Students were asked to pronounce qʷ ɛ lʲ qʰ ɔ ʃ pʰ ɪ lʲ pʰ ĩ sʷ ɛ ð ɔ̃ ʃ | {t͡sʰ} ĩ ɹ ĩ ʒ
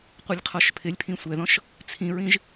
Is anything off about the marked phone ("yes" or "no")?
no